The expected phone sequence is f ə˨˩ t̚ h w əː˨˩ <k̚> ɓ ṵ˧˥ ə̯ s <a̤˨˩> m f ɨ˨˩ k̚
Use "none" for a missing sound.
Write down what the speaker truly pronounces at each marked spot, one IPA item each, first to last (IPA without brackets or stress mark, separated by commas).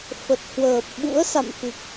p̚, a̰˧˨